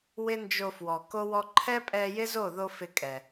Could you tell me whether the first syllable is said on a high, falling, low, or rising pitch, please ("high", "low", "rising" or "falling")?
high